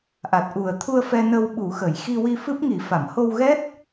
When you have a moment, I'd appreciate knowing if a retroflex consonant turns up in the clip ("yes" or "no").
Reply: no